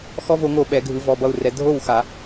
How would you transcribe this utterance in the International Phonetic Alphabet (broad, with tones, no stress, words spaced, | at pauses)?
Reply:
xɔ˦vo˨˦ŋo˧˩ ɓɛ˨˩˦ɡʱɯ˨˦ vɔ˩˧˩bʌ˥˨u̯rɛ˨˦ dʱo˥˨wxa˨˩˦